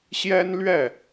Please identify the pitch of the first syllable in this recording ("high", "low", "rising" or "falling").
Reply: high